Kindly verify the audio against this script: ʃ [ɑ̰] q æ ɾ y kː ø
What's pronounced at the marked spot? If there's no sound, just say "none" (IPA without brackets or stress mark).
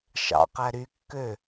ɑ̰